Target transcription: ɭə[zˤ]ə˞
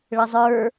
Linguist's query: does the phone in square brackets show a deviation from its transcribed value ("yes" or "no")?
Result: no